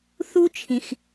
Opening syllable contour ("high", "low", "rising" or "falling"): high